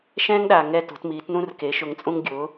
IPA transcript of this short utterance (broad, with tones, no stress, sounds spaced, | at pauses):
ʃ ɛ̃˥ ŋ ɗ a˨˩ ŋ ɛ˥˧ t o̤˩˥ t m iː˩˥ t n ũ˥ r k e˩˥ ʃ ʊ˧ ŋ t͡sʼ ũ˥ ŋ ɡʲ ʊ˩˥